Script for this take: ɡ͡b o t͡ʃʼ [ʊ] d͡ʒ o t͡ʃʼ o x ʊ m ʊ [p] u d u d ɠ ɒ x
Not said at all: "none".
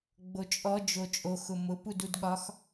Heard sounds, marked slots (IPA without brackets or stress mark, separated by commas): ɔ, p